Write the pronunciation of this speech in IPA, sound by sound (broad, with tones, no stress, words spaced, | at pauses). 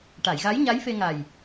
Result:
ʈa˨˩˨jɣa˧˥j ɲa˧˥jfe˧ŋa˨˩j